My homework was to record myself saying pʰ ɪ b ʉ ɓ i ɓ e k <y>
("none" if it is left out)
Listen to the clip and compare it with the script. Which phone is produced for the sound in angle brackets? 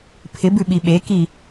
i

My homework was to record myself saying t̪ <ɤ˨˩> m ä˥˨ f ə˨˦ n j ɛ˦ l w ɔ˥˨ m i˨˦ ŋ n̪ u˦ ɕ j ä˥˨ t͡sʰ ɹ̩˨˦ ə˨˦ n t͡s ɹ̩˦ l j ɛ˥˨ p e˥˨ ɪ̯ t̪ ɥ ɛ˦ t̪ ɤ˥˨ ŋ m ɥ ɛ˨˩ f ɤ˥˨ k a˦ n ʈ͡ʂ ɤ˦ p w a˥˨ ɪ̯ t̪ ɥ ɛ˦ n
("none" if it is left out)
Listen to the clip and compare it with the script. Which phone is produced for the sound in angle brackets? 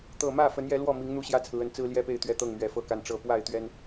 ɤ˨˩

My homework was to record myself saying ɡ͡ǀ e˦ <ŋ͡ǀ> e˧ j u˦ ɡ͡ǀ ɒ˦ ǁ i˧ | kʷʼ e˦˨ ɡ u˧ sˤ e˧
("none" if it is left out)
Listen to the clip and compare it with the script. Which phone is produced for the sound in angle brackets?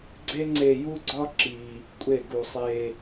ŋ͡ǀ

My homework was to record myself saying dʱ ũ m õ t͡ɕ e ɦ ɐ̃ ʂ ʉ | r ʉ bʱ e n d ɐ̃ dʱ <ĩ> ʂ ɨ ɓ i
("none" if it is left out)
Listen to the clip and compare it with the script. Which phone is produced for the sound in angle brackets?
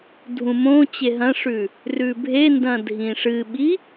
ĩ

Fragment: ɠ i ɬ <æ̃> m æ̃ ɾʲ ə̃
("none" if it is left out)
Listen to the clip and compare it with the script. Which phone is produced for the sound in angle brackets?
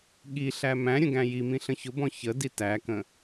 æ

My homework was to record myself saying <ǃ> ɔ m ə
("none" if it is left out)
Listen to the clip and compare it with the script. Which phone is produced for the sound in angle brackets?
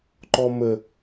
ǃ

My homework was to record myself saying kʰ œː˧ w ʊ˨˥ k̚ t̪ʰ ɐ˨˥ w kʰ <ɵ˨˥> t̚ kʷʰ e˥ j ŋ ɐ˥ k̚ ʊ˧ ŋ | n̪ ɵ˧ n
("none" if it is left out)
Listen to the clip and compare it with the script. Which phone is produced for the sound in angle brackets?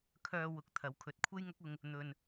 ɵ˨˥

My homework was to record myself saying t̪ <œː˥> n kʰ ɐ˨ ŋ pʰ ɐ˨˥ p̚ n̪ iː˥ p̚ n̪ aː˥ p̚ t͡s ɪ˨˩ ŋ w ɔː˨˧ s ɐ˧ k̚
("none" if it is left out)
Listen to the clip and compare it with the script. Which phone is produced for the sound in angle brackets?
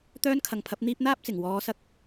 œː˥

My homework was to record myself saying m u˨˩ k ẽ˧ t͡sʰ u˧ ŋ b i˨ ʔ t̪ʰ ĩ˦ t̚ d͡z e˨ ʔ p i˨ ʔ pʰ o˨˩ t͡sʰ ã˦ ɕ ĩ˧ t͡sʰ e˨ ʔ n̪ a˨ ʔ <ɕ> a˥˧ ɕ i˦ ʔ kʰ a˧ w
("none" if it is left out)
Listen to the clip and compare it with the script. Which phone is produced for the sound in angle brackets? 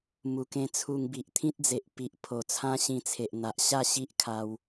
ɕ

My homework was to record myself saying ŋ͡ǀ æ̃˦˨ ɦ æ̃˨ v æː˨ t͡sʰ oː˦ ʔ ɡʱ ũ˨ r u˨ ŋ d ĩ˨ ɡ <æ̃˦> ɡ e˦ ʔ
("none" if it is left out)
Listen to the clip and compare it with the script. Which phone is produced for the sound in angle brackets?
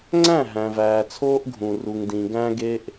æ̃˦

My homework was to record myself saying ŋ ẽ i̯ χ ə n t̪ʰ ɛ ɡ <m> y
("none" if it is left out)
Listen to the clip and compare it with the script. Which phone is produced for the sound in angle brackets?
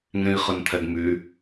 m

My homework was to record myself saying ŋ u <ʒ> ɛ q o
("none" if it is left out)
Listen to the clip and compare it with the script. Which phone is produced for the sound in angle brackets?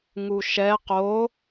ʃ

